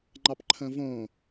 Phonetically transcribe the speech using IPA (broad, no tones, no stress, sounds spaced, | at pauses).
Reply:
ŋ͡ǃ ɑ p ǃʰ ə̃ː v õː